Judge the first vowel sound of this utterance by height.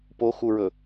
mid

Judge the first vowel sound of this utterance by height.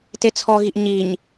mid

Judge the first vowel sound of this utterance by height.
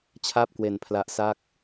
low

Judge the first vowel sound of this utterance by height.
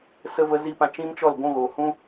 mid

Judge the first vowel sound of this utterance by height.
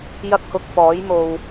low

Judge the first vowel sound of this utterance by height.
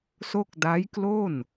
mid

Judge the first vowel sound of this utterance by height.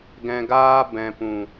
mid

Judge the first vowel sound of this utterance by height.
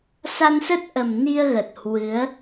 low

